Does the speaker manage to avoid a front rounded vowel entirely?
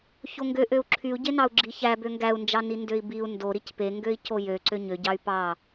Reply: no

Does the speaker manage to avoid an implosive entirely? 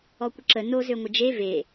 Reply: yes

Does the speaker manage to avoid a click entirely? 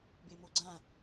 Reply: no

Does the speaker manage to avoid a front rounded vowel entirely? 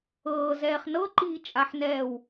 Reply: yes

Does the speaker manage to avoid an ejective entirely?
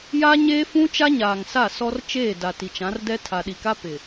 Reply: yes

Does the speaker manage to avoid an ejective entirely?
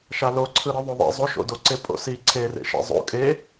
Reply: no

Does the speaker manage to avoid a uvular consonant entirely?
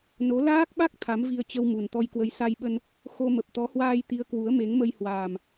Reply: yes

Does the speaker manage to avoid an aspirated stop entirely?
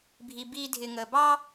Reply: yes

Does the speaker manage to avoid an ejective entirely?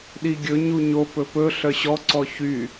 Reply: yes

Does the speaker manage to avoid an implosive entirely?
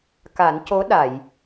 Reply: no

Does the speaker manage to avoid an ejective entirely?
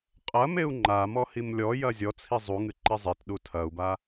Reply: no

